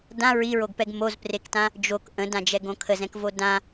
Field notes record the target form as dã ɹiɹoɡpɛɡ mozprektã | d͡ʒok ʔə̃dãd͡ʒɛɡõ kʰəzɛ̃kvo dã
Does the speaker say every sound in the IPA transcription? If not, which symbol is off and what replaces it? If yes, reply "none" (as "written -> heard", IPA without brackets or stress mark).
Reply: none